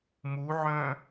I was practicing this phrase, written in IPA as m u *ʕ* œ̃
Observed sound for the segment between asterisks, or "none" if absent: ʕ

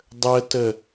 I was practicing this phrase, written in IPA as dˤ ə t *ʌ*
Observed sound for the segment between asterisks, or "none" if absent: ə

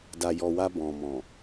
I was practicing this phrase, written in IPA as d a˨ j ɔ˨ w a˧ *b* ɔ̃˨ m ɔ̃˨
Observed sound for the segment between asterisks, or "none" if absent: b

